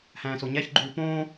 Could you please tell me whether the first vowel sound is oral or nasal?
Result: nasal